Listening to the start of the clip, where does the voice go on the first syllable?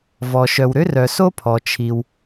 low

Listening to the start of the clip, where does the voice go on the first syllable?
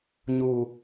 low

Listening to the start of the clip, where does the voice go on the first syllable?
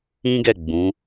high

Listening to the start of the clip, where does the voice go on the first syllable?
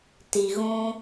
low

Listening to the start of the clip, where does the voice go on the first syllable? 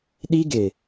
high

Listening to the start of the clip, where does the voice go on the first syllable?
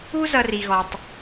high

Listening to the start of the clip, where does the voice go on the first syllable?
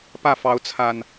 falling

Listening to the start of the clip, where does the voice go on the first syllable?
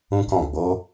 high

